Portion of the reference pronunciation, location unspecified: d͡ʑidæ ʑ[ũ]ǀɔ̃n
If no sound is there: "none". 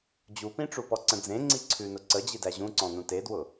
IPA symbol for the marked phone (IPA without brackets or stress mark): ũ